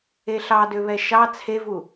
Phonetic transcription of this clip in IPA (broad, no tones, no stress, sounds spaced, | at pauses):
e ɬ ɑ d ø β ɛ ʃ ɑ t͡sʰ e v u